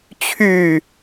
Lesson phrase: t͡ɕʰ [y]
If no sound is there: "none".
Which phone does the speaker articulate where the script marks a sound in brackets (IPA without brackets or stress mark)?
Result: y